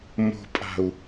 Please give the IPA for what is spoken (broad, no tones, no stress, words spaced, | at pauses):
mo̤pʼa̤u̯